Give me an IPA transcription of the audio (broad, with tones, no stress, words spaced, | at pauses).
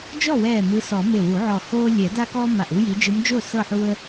d͡ʒɔ˥˩wɛː˧˩ mɯ˨˦sɔ˨˩˦ me˧˩wu˨˩˦ʕɔ˧˩hoː˦ lʲɛ˨˩˦da˦kɔː˦ ma˧˩ʔu˦ji˨˦ d͡ʒɯ˨˦md͡ʒo˥˩ sɤ˥˩ħu˦ə̯